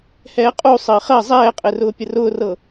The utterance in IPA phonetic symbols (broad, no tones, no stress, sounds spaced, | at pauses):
h ɛː qʼ u sˤ ɘː χ ɜ zˤ ɛː qʼ ɘ r ʊː pʲ ə r ʊː r ɤ